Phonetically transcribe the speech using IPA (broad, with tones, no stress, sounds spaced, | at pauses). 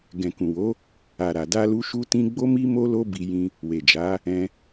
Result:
ɡ ɛ̃˨ k ũ˨ w o˨˦ | a˨ ɾ a˨ d a˧ l u˧ ʃ u˧ t ĩ˧ ɡ͡b o˦ m i˦ m o˦ l o˦ b i˧ j ĩ˧ | w e˨ d͡ʒ a˨˦ | ɛ̃˧